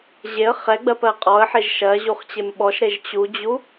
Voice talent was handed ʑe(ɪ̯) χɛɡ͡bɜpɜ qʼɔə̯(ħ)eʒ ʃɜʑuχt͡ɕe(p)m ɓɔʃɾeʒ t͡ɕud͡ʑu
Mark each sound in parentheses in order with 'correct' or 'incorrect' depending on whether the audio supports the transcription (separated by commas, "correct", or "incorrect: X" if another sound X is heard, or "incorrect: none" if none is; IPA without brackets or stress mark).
incorrect: ə̯, correct, incorrect: none